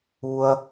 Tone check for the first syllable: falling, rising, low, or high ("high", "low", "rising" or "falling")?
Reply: high